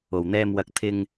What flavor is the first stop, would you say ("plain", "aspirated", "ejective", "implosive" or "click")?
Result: plain